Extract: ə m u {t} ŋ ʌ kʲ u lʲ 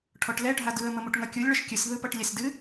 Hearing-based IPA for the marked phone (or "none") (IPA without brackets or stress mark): ʈ